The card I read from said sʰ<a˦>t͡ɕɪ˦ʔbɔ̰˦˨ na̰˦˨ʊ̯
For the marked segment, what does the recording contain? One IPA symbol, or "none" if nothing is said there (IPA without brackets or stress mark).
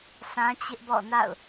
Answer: ã˦